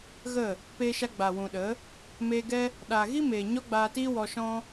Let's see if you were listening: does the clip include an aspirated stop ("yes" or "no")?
no